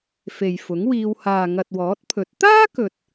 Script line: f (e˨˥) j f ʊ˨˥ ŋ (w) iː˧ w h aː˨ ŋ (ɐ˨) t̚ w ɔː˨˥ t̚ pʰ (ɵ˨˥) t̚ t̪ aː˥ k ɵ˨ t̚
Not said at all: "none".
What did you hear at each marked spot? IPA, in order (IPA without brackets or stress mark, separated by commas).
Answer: e˨, w, ɐ˨, ɵ˨˥